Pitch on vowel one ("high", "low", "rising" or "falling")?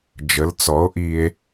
rising